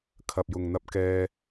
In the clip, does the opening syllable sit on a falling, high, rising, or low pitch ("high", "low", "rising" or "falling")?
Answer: low